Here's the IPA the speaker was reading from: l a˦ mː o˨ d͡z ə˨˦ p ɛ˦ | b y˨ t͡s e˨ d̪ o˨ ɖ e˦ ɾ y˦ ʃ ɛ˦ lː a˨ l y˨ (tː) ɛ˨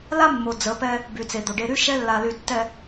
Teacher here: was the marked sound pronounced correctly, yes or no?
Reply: yes